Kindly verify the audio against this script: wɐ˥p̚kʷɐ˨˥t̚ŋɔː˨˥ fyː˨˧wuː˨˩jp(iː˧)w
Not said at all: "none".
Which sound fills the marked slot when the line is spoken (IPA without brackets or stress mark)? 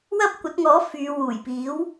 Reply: iː˨˥